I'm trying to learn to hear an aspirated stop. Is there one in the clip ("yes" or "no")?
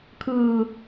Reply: yes